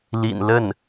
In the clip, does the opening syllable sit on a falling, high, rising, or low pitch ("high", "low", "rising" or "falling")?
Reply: low